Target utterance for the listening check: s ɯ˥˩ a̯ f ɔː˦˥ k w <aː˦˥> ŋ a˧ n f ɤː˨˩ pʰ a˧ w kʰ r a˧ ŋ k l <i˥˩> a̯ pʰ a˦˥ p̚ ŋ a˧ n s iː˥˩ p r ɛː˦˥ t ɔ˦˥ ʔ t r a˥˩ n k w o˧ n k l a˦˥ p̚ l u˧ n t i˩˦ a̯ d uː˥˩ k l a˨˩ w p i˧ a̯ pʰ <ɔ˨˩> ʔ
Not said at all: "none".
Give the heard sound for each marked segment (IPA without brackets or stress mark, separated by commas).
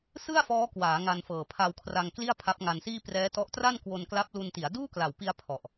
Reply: aː˩˦, i˥˩, ɔ˨˩